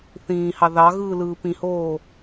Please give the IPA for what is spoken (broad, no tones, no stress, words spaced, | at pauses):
θĩːhɑ ðɑɣɯː lɯːpĩhoː